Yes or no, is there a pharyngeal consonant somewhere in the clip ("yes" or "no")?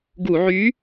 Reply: yes